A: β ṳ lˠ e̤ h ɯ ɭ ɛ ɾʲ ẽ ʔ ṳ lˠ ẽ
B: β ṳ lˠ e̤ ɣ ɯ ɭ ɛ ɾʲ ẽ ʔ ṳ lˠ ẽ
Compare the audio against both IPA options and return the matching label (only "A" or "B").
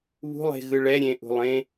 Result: B